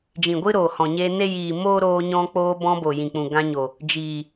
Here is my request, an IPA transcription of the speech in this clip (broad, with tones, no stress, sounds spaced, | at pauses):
d͡ʒ ĩ˨ ɡʷ ɨ˦ ɾ oː˨ h ɔ̃˨ ɲ e˧ n e˦ j iː˨ m oː˦ ɾ oː˧ ɲ ɔ̃˧ k͡p oː˧ b ɔ̃˧ b o˨ j ĩ˨ k͡p ũ˨ ɡ ã˧ ɲ o˨ | d͡ʒ iː˨